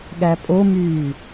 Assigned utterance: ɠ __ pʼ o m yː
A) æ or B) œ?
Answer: A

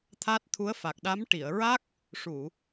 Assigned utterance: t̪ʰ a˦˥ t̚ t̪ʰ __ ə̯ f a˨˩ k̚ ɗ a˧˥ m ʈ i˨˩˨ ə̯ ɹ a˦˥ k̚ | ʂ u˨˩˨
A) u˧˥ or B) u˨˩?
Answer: A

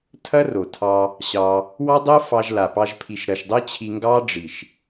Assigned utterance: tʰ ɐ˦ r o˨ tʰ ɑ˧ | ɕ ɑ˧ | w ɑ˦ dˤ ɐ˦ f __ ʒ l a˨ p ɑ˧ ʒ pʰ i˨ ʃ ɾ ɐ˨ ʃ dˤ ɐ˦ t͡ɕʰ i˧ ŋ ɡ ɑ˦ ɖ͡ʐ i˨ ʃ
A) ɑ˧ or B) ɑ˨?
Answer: A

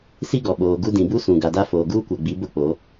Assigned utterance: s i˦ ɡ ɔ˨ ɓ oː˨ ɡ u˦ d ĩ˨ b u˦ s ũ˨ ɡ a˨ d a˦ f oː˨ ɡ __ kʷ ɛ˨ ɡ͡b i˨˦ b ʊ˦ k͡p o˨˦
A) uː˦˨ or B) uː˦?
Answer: B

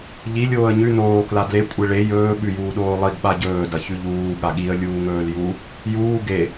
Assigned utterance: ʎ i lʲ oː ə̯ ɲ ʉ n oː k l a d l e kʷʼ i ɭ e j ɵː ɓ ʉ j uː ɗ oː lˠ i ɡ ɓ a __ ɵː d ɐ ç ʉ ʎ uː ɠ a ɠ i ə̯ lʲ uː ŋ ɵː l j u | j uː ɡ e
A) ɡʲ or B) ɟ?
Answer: B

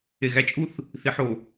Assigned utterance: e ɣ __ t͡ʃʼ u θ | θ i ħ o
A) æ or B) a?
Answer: A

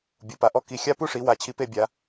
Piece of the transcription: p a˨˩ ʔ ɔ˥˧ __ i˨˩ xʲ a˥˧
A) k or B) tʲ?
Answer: A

